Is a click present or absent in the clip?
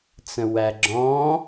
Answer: present